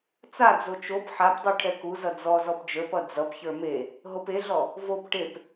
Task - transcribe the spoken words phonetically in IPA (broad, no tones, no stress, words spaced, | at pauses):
t͡sad͡zo t͡ʃop ħapdˤu ʈʰɛkuzʌ d͡zɔzɔp d͡ʒə˞pʌ d͡zʌpçə˞ me | ɦopeɮɔ | vop ʈep